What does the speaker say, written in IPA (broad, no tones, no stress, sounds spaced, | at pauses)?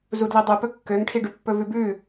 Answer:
z u d l i dˤ ʉ p ɵ kː ø ŋ ʈʰ i ɖ ʉ pː ɵ v ʉ b ʉː